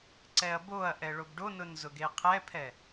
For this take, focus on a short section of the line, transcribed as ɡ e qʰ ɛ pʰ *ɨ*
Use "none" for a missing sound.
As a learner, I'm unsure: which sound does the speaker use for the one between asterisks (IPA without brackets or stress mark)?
ɛ